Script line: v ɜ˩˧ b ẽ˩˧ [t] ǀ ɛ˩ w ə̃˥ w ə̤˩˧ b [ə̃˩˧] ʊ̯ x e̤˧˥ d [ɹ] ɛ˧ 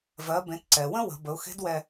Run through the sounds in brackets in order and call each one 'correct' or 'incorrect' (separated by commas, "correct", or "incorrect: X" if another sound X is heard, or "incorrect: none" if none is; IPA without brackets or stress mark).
correct, incorrect: ə˩˧, incorrect: w